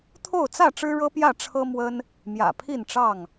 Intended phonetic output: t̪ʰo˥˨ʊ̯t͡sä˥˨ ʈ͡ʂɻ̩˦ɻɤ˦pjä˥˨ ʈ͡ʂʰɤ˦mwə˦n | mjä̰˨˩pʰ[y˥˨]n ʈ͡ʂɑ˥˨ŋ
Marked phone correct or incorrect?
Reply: incorrect